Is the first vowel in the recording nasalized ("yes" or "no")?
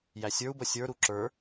no